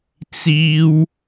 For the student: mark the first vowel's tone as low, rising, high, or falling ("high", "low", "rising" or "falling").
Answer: high